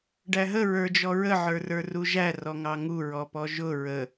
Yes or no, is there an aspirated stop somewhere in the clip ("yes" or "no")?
no